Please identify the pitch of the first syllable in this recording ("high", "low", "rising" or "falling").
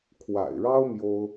low